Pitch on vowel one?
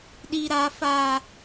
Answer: high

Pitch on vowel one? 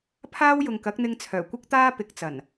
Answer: high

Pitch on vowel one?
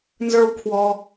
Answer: high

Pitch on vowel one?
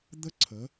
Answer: high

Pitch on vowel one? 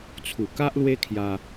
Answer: low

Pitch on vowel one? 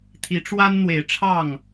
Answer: rising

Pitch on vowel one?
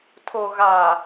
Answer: low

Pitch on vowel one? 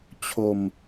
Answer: falling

